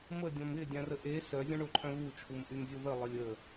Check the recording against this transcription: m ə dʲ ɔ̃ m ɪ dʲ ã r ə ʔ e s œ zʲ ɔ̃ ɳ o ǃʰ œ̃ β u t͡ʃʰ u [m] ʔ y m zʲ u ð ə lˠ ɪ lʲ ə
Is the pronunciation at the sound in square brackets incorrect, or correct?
correct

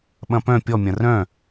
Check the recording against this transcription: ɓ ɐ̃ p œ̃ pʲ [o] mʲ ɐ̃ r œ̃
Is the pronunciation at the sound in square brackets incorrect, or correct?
incorrect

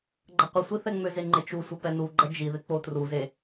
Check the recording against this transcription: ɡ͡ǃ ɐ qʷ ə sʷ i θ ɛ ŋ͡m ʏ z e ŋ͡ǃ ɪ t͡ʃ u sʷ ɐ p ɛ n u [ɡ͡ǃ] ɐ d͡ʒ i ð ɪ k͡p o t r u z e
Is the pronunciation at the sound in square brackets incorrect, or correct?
correct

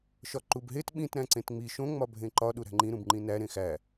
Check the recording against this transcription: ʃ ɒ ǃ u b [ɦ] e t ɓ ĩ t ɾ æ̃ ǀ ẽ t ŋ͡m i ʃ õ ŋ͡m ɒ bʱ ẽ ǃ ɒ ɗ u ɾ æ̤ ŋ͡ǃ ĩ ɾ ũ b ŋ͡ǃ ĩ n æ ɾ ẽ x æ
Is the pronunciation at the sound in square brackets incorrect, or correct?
correct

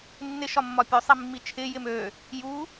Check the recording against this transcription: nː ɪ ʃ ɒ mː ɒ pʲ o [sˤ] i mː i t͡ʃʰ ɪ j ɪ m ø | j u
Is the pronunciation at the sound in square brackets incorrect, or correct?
correct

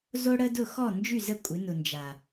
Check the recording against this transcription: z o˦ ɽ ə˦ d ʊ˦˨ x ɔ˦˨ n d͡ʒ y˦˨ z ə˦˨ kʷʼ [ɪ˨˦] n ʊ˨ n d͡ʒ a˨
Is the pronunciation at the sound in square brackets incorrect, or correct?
correct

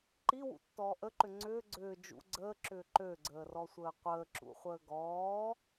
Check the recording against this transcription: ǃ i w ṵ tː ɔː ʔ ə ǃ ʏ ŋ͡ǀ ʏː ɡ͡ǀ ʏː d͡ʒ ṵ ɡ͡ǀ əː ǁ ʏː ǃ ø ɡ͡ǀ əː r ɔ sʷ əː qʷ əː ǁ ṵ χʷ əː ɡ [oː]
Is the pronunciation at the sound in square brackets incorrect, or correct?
incorrect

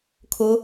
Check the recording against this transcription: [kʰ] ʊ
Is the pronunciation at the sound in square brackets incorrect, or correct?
correct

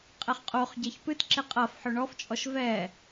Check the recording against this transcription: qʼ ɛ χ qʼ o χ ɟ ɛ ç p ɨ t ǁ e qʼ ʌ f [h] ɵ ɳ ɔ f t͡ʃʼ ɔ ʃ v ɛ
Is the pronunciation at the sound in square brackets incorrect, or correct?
incorrect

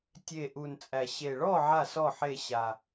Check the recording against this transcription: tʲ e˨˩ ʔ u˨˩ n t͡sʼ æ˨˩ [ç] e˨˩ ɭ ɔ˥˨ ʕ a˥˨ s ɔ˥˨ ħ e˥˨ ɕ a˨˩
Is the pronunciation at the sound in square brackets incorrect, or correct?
incorrect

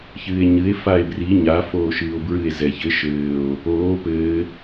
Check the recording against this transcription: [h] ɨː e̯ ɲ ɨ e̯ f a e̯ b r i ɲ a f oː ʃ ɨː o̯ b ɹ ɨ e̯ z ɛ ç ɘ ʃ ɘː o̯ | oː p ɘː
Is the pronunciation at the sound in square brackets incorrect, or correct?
incorrect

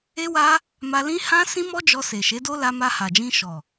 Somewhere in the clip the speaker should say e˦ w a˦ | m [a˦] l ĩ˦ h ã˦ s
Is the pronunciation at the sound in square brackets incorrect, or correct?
incorrect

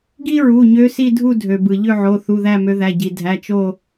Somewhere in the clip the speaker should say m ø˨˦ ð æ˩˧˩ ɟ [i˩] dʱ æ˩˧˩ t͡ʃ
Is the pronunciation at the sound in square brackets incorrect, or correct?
correct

